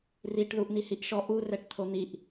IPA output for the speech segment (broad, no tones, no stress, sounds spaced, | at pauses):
r i ʈ ð u ʔ n̪ i h i ʔ ʃ ɔ ʔ u r ɛ ʈ t̪ʰ o n̪ i ʔ